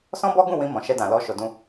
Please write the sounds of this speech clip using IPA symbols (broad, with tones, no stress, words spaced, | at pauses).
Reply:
sɔ̃˦bɔ˦ɡũ˦˨wĩ˧ mɔ̃˨ʃɛ˧dã˨lɔ˧ ʃo˨dũ˧